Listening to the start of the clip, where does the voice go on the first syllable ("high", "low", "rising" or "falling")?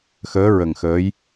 rising